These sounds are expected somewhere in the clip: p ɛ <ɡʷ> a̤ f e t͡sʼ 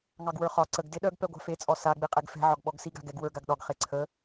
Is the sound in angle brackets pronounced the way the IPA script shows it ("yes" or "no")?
yes